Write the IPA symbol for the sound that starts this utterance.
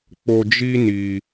k͡p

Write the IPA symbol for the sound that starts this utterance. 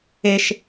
e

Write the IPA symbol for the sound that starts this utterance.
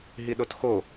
ɦ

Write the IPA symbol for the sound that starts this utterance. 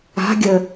a̤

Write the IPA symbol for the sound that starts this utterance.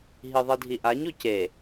ɦ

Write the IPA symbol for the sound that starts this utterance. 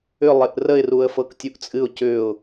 ʏ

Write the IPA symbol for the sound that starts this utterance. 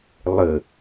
lˠ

